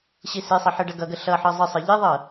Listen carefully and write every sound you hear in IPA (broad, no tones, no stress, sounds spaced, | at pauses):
ɕ i s i sˤ ʌ ħ ɯ ɖ ʌ ɡ ʌ ɡ ə ɬ ʌ ħ ɤ zˤ ə sˤ ɯ ʎ i ðˤ ɤ